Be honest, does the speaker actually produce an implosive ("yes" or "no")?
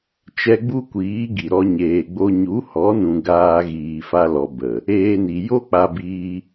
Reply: no